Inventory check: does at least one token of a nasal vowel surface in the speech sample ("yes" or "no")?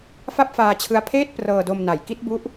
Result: no